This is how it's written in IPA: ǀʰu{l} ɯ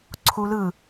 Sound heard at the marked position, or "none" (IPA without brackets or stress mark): l